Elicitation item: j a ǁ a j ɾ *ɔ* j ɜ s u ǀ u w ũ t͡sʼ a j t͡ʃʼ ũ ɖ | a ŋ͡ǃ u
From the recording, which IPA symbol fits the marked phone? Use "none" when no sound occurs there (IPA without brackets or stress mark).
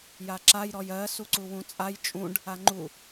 ɔ